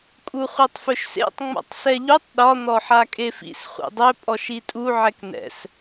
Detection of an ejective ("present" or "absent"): present